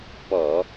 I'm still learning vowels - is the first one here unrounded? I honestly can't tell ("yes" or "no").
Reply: no